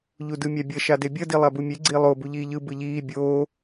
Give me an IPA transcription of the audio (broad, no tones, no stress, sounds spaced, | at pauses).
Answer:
ʎ u d ɯ mʲ a bʲ ʌ ʃ a d e bʲ ʌ d i lˠ a b u mʲ e ɡ͡ǀ i lˠ o b u ʎ iː ʎ ɯ b ɯ ʎ iː bʲ oː